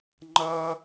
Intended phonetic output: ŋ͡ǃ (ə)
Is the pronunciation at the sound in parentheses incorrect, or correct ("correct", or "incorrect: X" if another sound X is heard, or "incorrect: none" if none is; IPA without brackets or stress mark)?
incorrect: ʌ